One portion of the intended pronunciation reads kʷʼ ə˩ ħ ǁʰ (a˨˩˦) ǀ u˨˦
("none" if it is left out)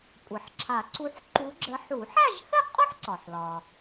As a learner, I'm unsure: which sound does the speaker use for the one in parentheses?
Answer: a˨˩˦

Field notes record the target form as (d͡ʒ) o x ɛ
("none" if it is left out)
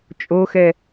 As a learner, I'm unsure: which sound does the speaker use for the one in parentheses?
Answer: t͡ʃʼ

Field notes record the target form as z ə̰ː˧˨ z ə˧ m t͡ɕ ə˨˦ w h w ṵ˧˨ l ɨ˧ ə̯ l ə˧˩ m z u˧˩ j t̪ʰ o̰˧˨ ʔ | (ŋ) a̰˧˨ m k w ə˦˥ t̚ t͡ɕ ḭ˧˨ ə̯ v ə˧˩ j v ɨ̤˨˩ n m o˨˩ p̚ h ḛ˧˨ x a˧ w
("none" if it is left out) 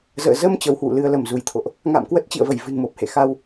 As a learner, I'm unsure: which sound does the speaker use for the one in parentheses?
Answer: ŋ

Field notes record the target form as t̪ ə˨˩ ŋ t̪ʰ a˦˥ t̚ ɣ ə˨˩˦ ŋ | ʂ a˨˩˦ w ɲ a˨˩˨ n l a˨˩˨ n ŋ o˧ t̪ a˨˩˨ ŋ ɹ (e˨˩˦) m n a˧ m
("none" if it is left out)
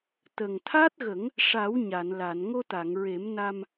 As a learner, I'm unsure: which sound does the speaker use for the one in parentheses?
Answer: e˨˩˦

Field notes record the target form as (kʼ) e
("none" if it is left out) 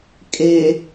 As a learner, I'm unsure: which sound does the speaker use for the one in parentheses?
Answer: kʼ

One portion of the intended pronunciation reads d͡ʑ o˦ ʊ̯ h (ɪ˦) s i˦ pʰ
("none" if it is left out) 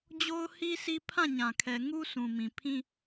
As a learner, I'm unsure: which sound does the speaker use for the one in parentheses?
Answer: i˦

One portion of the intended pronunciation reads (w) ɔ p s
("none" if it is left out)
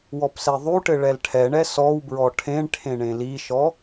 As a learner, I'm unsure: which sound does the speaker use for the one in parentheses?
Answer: w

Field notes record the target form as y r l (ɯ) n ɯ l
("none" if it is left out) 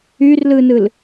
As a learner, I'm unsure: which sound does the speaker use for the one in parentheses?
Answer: ɯ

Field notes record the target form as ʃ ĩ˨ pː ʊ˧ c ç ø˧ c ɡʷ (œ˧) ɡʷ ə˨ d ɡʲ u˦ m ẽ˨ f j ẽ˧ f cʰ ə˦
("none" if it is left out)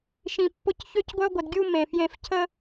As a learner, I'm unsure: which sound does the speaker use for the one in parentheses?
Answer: œ˧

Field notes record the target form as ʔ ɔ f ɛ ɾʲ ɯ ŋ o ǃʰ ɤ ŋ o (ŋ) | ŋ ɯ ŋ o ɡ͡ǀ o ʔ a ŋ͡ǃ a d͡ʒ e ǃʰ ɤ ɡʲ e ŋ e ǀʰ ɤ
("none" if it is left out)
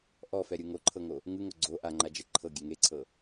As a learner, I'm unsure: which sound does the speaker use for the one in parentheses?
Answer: none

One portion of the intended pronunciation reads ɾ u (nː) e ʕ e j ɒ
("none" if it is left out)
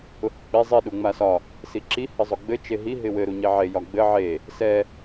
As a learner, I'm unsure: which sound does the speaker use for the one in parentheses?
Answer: ɲ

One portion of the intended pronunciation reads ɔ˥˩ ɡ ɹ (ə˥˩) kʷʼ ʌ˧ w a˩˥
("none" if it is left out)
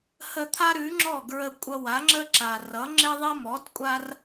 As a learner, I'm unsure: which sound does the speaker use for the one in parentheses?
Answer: ə˧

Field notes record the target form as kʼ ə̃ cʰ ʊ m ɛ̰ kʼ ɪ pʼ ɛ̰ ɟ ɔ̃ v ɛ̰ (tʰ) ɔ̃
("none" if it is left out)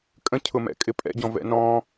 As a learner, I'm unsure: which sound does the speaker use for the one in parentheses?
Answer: n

